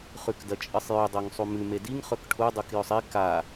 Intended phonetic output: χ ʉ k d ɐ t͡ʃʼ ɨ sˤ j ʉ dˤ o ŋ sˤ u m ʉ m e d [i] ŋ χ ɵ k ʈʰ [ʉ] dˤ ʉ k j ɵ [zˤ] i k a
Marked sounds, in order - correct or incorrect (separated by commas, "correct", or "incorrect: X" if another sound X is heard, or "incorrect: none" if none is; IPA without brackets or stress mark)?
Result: correct, incorrect: u, incorrect: sˤ